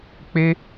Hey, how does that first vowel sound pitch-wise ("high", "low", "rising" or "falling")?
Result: high